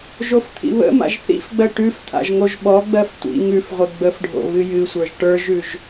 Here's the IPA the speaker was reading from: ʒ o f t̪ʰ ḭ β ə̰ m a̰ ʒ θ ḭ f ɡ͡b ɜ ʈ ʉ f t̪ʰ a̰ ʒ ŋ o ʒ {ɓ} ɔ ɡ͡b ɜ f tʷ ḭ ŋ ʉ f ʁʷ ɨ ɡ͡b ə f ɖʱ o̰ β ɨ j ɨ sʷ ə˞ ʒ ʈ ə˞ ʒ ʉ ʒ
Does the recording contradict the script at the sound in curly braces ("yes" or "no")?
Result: no